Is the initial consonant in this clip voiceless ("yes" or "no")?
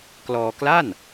yes